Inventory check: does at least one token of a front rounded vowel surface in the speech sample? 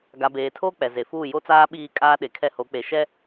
no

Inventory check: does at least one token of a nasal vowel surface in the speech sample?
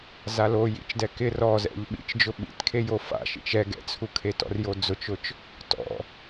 no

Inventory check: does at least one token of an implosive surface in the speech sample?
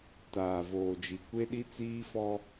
yes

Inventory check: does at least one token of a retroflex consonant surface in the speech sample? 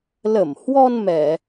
no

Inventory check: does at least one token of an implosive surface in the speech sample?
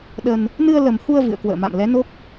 yes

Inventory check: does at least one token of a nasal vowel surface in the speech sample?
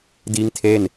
no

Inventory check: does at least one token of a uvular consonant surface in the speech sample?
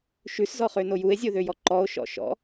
yes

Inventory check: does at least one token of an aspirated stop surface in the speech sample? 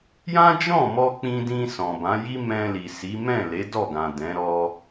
no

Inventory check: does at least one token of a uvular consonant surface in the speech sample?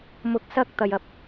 no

